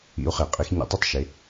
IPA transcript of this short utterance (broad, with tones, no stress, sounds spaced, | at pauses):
ḭ˧ u̯ χ e˨ qʼ i˧ x ɲ ḛ˨˦ tˤ i˨ tˤ ʃ e˧